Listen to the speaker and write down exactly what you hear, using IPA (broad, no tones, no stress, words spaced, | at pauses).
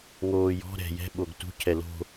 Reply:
ŋoːjɔ̤ ɾɛ̤ jɛ̤ ɓoɡtṳ cʰɛlo̤